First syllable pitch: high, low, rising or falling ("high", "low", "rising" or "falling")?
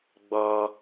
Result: high